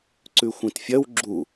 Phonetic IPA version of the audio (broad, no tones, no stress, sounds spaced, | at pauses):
ǀ ʉ xʷ ĩ t fʲ ɐ w ɡ͡ǁ u